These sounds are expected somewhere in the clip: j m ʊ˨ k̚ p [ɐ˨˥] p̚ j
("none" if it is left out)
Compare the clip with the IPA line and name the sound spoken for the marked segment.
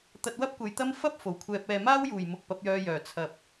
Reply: ɐ˨˥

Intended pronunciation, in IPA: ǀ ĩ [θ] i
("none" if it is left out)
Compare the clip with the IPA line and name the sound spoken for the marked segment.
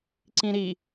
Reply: ɾ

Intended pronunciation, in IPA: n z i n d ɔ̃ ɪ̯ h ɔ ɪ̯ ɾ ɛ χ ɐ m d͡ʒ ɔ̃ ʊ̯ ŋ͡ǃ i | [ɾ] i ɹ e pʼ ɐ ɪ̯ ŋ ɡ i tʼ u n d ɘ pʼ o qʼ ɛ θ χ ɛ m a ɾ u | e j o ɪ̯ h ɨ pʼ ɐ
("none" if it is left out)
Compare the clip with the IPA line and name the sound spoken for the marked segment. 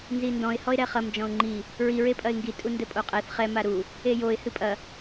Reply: ɹ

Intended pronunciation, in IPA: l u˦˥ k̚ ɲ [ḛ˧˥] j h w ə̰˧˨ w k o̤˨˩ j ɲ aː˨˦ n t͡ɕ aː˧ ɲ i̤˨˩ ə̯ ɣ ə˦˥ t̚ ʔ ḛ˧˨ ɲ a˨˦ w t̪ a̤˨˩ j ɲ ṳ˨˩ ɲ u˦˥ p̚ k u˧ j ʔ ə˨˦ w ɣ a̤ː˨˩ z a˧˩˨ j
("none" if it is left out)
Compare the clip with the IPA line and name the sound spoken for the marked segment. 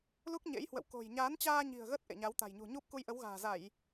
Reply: ḛ˧˥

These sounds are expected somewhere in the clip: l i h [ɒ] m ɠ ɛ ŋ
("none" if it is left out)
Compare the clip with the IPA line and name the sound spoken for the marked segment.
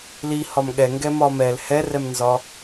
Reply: ɒ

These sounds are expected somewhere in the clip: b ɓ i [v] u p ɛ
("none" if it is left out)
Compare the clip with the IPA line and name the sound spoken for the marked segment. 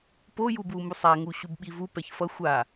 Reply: v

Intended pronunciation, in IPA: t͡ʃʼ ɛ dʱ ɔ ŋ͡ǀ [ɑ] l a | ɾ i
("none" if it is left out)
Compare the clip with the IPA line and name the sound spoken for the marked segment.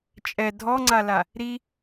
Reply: a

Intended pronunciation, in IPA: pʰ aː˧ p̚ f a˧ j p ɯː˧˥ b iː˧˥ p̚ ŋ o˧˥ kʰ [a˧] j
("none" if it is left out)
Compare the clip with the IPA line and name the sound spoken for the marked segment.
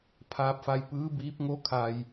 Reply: a˧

